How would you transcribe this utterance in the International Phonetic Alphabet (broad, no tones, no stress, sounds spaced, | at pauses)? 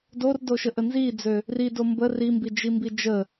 d o r d o ʃ ə ʔ ə n z i d͡z ø | r i d o m b ə r i m b i d͡ʒ i m b i d͡ʒ ə